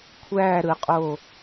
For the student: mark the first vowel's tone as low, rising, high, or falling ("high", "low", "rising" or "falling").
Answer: falling